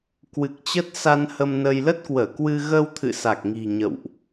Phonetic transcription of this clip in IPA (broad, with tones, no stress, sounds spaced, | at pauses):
k w ɨ˨˩ k̚ t͡ɕ ə˦˥ t̚ s a˧ n h ə˧ m n ə˧ j l ə˦˥ t̚ k w əː˧˩ k w ɨ˧ ɣ ə˧ w t̪ʰ ɨ̰˧˨ s a˨˩ k̚ ŋ i̤˨˩ ɲ ə̰˧˨ w ʔ